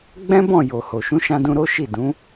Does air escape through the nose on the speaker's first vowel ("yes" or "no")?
yes